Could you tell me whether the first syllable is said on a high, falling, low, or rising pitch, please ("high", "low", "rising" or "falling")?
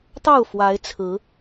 falling